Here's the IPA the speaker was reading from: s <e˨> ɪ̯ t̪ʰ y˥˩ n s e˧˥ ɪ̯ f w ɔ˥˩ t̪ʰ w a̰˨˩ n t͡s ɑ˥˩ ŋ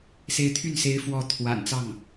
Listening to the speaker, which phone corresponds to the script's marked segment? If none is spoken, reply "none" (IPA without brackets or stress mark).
e˧˥